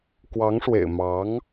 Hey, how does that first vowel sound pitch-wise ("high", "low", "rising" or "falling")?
rising